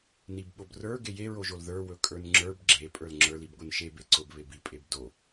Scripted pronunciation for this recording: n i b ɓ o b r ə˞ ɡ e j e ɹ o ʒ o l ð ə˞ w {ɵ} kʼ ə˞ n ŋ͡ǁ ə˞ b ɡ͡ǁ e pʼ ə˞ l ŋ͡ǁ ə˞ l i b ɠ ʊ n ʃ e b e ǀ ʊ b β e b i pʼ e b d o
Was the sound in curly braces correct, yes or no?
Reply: yes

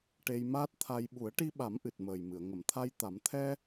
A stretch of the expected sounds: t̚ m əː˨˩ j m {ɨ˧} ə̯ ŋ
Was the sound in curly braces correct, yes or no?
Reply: no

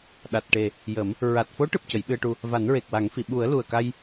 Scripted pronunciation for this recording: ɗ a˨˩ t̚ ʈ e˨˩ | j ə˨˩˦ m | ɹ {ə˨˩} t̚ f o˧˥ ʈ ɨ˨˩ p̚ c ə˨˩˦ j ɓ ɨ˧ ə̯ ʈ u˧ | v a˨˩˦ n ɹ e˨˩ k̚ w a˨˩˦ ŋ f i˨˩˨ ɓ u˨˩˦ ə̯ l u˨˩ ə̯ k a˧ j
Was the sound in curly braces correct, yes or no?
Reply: no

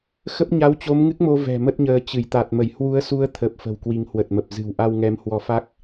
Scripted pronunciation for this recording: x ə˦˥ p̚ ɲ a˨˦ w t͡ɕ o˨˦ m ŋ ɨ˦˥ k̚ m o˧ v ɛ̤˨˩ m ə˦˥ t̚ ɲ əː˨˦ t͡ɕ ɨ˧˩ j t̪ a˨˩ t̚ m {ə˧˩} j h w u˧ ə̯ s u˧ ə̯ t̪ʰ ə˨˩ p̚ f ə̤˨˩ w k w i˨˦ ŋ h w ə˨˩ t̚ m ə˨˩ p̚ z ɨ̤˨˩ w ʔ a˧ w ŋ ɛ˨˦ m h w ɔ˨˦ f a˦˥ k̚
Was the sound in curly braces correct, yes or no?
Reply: yes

